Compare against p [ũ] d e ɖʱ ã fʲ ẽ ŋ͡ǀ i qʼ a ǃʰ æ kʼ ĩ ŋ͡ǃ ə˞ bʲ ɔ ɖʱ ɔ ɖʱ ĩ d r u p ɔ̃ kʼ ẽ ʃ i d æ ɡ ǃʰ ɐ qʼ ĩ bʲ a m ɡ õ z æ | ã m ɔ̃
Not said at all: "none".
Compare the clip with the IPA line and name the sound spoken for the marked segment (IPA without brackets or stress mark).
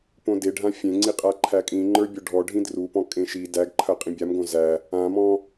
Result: õ